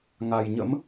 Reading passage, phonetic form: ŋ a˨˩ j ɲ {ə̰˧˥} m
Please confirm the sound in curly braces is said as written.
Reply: yes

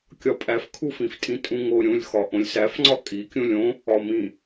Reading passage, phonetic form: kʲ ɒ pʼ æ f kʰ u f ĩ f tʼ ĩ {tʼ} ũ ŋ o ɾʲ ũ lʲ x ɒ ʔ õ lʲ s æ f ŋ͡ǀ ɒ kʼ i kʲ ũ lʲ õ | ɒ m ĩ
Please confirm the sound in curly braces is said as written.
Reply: yes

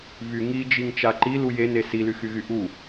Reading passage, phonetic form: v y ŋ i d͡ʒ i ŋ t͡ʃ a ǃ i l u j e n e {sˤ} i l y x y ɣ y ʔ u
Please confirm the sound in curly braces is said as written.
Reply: no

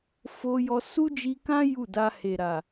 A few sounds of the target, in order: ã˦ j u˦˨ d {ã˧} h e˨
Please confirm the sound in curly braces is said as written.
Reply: no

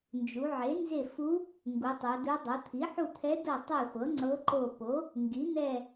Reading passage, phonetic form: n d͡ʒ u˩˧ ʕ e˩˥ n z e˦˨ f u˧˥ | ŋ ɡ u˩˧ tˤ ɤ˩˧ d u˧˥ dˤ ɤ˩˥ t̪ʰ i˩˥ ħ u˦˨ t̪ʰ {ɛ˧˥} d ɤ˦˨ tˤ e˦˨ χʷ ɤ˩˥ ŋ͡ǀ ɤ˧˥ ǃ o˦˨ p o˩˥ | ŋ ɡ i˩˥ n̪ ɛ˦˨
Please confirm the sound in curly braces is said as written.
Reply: yes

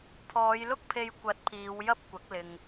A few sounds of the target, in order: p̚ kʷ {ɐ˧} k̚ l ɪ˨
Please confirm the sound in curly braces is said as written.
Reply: no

